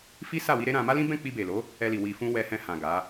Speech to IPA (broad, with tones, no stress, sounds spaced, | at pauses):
f i˦ s a˦˨ w i˧ ɾ e˦ ɾ ã˧ m a˦ l ĩ˦ b ɛ̃˦˨ k͡p i˧ b e˨ l o˨˦ | ɛ˧ l i˨ w i˨ f ũ˧ w ɛ˧ h ɛ̃˧ h ã˨ ɡ a˨˦